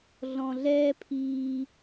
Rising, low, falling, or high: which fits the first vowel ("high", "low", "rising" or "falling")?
low